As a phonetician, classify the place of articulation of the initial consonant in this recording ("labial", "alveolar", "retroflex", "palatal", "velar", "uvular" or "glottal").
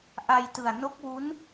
glottal